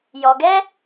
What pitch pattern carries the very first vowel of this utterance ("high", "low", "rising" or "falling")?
low